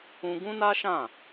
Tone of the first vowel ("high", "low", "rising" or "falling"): high